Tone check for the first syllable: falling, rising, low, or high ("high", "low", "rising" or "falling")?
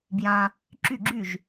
low